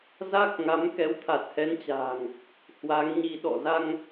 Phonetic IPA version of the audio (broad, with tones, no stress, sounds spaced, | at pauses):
z a˦˥ k̚ ŋ a˨˦ m k ɛ˨˦ w t̪ʰ a˨˩ t̚ h ɛ˨˦ n t͡ɕ a̤ː˨˩ ŋ | h w a˨˦ ŋ ɲ i˧ ɗ ɔ̰˧˨ z a˧ ŋ